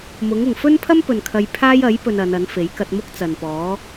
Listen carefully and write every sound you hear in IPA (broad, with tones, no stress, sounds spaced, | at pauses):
m ʊ˨˥ ŋ ʊ˨ ŋ f ɵ˥ n pʰ ɐ˥ m p ɵ˨ n kʰ ɐ˧ j pʰ aː˥ j ɐ˨˥ j p ɵ˧ n ɐ˨˧ n ɐ˨˥ n f e˨˥ j k ɐ˧ t̚ m ʊ˥ k̚ t͡s ɐ˨ n p ɔː˨˥